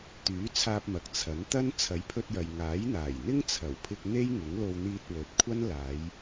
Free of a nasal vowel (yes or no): yes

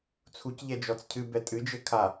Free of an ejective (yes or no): no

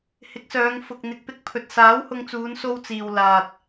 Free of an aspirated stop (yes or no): no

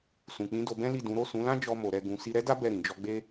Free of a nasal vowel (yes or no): no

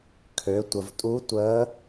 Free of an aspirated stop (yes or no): no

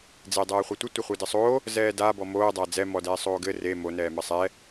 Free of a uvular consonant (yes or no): no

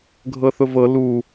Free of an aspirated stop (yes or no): yes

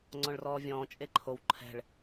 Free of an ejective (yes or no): no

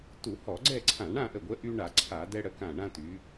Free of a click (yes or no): no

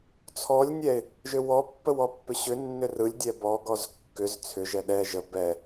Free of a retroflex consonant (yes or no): yes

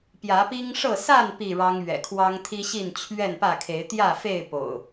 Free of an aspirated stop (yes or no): no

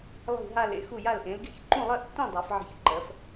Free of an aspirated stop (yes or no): yes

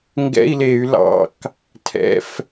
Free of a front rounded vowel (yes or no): no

